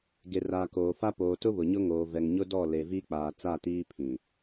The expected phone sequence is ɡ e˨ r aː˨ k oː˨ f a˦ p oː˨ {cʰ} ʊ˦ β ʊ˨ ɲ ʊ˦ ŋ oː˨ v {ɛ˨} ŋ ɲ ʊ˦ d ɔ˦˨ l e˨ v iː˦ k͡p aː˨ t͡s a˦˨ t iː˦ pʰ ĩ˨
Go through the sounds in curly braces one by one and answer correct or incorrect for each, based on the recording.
incorrect: t, correct

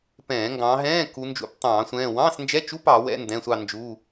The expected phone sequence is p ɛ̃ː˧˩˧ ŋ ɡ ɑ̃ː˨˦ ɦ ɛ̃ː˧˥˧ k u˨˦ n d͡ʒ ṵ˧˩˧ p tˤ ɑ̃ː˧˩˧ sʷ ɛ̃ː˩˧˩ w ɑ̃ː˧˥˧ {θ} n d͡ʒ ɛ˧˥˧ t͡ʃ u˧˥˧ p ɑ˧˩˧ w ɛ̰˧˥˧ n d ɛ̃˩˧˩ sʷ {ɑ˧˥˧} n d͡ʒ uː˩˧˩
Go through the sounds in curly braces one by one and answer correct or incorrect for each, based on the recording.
incorrect: s, incorrect: ɑ˦˨

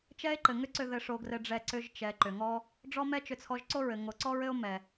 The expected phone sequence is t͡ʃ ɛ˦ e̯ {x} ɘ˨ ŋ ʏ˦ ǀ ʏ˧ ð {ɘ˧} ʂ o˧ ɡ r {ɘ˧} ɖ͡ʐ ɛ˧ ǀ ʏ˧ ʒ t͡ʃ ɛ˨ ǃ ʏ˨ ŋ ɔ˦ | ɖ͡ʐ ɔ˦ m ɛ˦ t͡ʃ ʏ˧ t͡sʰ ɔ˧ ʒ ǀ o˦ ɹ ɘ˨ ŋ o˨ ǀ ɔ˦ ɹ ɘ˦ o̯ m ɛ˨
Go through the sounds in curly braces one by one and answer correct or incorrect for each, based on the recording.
incorrect: ǃ, correct, correct

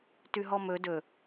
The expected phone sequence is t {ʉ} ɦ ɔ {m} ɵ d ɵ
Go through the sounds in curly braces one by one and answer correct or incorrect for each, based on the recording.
correct, correct

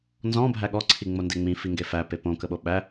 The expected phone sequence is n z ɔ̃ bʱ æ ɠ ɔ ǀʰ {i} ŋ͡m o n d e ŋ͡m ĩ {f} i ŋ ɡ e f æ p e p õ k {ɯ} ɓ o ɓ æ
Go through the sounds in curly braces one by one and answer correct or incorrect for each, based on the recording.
correct, correct, incorrect: ə

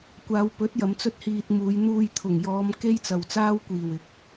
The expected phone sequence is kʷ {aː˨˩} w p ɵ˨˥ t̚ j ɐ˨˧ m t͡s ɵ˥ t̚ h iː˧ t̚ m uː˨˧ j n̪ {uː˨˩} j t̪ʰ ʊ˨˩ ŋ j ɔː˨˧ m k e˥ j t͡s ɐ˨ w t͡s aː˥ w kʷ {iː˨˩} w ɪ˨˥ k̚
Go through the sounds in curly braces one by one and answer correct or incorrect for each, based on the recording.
incorrect: aː˨˧, incorrect: uː˧, correct

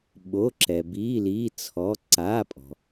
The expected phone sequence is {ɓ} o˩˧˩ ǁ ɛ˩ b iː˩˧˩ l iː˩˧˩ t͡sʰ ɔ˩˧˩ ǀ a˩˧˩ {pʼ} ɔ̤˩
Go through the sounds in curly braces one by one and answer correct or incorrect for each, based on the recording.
correct, correct

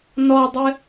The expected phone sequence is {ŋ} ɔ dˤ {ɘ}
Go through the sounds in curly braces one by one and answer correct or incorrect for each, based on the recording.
incorrect: n, correct

